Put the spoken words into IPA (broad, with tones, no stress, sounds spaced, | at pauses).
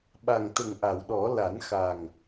ɓ a˨˩ ŋ t̪ ə˨˩ ŋ ʔ a˨˩˨ w ɗ ɔ˨˩˦ l a˨˩˦ n x a˨˩ ŋ